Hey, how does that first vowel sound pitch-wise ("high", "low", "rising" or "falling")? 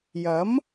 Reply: rising